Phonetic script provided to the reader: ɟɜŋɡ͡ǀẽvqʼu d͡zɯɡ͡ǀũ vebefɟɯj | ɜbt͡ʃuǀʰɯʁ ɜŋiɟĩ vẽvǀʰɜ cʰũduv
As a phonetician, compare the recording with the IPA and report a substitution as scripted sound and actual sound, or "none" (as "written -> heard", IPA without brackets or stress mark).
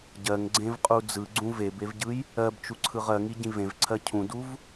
f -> v